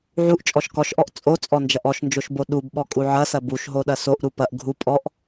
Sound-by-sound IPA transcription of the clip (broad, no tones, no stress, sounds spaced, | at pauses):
ʕ u ʔ t͡ʃʼ ɔ ʃ k ɔ ʃ ʔ ɔ ʔ t͡sʼ o t͡sʼ ɔ n d͡ʒ ɐ ʔ ɔ ʃ n d͡ʒ o ʃ b o ɗ u b ɓ ɔ kʼ u ʕ ɐ s ɐ b u ʃ ɦ o ɗ ɐ s o ʔ ɾ u p ɐ ʔ ɡʱ u pʼ ɔ ʔ